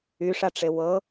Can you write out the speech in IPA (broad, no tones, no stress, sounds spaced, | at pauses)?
y ʂ a ʈ͡ʂ e w ɤ